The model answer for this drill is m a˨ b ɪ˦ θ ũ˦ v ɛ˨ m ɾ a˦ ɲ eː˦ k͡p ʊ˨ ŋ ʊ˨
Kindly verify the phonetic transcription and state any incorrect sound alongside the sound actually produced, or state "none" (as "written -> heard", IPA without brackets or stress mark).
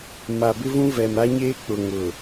θ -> v